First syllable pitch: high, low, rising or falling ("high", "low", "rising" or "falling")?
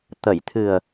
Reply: low